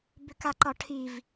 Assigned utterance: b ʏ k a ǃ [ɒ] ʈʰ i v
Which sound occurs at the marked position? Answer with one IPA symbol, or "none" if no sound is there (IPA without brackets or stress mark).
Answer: ɒ